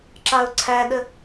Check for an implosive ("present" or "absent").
present